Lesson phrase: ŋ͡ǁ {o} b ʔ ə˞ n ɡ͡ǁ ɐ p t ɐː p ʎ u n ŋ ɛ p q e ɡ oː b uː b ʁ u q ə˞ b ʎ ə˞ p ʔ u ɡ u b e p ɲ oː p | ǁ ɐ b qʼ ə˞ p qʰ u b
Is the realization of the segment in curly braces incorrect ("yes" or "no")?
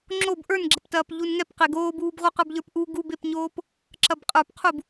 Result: no